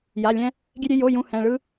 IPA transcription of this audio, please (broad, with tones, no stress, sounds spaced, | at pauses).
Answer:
j a˧˥˧ lʲ ɛ̃˥ | ɡʲ e˥ ɾʲ e˥ j o˧˥˧ j ũ˥ h ɛ̃˧˥˧ ɭ ɯ˥